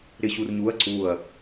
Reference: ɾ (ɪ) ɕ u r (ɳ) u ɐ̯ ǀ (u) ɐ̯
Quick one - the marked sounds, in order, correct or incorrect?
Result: correct, incorrect: ɲ, correct

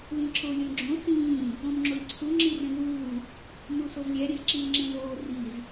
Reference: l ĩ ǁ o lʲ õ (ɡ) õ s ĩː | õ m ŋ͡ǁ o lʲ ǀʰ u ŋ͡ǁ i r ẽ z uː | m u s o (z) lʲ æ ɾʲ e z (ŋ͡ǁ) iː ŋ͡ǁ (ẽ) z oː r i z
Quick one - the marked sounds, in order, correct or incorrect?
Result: incorrect: ɡ͡ǁ, correct, incorrect: ǁ, correct

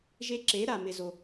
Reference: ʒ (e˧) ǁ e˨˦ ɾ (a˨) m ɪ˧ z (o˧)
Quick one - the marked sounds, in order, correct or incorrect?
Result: correct, correct, correct

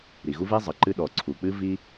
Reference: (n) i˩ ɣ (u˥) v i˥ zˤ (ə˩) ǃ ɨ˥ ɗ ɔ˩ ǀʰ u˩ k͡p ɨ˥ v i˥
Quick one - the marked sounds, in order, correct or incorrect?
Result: incorrect: ɾ, correct, correct

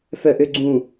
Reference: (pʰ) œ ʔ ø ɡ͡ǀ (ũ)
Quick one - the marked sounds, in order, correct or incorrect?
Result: incorrect: f, correct

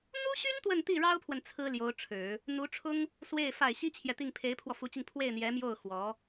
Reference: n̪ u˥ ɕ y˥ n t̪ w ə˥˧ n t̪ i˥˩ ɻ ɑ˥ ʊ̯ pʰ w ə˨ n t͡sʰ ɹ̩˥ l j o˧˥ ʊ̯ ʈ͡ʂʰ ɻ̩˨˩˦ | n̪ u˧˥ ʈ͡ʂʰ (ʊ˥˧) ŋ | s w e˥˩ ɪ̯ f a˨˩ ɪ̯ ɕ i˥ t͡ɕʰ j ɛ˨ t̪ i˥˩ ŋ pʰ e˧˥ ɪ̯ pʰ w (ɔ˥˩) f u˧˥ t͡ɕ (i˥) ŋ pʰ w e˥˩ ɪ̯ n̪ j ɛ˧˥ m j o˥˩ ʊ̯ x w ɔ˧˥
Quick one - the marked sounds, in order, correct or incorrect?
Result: incorrect: ʊ˥, incorrect: ɔ˧, incorrect: i˧

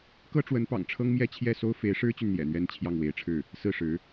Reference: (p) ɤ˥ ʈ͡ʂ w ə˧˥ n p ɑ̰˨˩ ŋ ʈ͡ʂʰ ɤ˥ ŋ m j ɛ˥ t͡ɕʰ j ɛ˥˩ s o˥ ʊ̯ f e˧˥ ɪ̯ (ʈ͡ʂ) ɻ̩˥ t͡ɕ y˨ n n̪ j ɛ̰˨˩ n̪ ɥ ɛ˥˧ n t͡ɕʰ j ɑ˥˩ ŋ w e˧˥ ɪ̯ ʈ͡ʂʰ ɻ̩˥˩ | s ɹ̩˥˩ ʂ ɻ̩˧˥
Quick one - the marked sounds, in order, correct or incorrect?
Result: incorrect: k, incorrect: ʂ

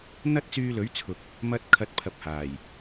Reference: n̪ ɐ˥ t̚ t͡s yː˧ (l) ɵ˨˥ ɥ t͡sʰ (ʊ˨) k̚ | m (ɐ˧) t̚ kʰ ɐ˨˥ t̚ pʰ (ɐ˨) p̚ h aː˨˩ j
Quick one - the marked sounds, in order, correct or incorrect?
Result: correct, correct, correct, correct

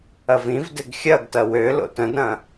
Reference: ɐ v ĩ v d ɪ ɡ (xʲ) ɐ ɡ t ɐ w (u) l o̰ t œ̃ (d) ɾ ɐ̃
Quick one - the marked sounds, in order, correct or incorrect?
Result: correct, incorrect: ø, correct

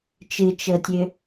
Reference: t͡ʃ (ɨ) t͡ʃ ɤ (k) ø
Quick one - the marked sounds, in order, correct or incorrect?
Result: correct, incorrect: tʲ

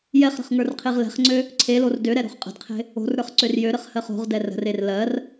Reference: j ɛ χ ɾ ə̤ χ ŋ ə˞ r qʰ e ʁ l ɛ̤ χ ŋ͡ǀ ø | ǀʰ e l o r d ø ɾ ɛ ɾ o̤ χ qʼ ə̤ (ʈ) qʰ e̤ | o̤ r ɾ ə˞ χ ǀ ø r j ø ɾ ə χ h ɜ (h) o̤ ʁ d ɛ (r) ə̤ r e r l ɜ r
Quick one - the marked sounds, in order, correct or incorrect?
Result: incorrect: d, incorrect: χ, correct

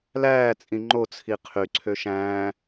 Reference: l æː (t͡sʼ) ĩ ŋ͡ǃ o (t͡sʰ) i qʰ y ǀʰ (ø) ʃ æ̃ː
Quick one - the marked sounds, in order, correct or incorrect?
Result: correct, correct, correct

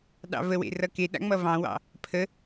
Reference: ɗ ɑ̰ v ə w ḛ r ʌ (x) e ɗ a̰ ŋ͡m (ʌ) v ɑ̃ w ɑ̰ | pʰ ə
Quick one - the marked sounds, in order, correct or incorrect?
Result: incorrect: k, correct

